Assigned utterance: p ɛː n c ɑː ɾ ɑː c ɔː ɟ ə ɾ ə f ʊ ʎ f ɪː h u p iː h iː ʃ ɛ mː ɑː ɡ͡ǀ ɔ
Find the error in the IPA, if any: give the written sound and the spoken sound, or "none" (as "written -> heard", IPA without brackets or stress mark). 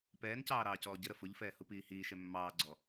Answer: ɪː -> ɛː